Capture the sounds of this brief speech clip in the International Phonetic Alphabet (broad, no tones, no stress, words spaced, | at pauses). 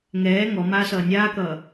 ŋɛː ŋɔmaː sʌːnʲaːkʌː